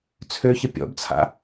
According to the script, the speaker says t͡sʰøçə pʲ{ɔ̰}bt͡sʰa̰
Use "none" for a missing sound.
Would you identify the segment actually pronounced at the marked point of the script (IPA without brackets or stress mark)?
ɔ̰